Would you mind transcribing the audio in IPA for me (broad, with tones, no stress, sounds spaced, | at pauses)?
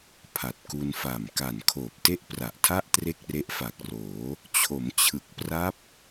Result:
pʰ a˨˩ t̚ k u˧ n f a˨˩ m k a˨˩ n kʰ oː˨˩ p̚ t e˥˩ ʔ p r a˨˩ ʔ tʰ a˥˩ ʔ t r e˥˩ k̚ r e˦˥ ʔ f a˨˩ k̚ r oː˩˦ | t͡ɕʰ o˩˦ m t͡ɕʰ ɯ˨˩ k̚ p r a˦˥ p̚